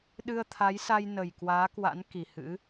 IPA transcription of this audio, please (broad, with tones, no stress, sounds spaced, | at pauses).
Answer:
ɗ ɨ˧ ə̯ t̪ʰ a˨˦ j s a˧ j n ə˨˩ j k w aː˨˦ k w a̰˧˥ n k i˨˩ h ɨ̰˧˥